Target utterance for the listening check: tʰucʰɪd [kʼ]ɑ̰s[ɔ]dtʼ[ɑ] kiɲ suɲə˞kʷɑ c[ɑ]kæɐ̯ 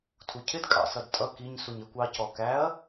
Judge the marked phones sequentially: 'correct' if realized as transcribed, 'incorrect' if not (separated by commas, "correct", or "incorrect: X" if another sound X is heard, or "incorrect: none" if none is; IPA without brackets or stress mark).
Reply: correct, incorrect: ʌ, incorrect: ʌ, incorrect: ɔ